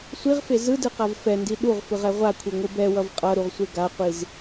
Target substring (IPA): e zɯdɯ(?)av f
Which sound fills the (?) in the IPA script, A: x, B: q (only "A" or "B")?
B